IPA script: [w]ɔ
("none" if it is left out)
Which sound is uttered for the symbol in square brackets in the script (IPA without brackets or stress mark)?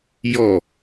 j